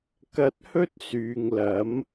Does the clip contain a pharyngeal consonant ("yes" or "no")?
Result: no